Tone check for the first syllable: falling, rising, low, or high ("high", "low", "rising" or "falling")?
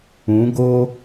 rising